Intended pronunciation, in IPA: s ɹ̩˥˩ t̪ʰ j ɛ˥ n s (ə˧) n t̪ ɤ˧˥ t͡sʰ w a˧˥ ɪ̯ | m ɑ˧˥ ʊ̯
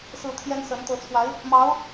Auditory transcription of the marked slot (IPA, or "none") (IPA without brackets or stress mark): ə˧˥